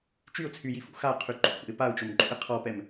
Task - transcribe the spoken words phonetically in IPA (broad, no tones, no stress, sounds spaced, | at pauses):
t͡ʃ y ʊ̯ t͡sʰ y j i f ṵ x a qʰ y ǃ o̰ x ṵ ɪ̯ p a ʊ̯ t͡ʃ o m ǃʼ ṵ ɪ̯ qʰ ɔ p ɛ m